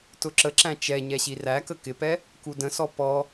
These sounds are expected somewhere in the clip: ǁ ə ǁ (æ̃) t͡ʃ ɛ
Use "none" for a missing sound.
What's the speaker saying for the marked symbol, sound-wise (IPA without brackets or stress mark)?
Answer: æ̃